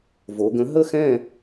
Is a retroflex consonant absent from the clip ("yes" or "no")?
yes